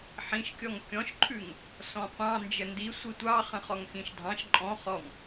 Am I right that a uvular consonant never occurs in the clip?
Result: no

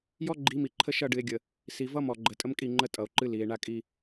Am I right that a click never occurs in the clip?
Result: no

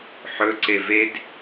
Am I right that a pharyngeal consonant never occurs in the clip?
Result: no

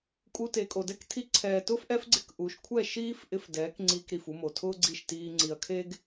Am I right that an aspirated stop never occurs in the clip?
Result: no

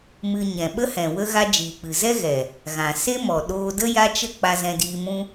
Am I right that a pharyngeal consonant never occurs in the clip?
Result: yes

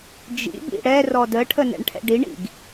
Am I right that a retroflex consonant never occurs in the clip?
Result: no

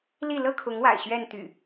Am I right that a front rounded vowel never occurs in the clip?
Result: no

